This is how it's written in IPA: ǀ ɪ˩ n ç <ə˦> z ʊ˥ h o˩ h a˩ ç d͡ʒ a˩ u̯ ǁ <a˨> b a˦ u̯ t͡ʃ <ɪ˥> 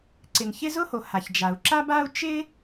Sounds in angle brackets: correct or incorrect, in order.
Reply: incorrect, incorrect, correct

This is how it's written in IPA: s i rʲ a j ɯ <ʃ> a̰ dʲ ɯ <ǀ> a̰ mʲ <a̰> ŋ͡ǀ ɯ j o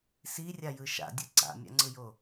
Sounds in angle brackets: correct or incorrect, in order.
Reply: correct, correct, correct

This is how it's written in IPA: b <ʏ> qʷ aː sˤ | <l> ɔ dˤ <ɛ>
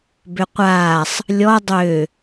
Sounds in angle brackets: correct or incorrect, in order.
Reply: correct, incorrect, incorrect

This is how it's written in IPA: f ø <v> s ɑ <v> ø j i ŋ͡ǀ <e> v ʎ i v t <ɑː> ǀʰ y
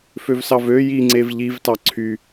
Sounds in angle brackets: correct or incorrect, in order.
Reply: correct, correct, correct, incorrect

